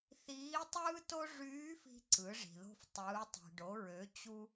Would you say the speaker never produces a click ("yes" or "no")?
no